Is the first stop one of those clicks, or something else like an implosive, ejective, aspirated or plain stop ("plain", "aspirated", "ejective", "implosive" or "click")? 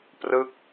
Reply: plain